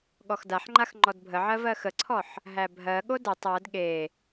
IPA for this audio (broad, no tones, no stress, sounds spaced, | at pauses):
ɠ ɔ x d a ħ ŋ͡ǃ a x ŋ͡ǃ ɔ d bʱ ə ʕ ɜ v ɜ x ə ǀʰ ɔ ħ | ɦ æ bʱ ɜ ɠ o d ə tˤ ɜ d ɠ e